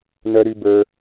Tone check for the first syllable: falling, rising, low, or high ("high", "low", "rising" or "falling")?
low